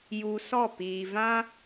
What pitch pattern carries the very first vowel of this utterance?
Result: low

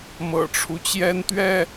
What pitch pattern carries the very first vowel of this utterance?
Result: low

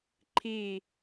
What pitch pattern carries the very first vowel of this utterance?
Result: falling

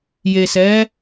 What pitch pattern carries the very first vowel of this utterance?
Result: low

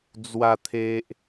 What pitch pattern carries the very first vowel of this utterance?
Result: low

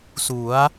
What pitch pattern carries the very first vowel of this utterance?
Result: rising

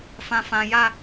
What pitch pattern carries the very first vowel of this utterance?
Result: high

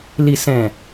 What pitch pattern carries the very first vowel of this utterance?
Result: low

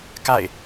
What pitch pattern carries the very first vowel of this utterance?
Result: falling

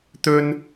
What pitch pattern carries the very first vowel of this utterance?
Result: high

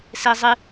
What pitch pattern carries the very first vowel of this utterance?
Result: high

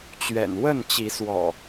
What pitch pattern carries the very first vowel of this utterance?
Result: low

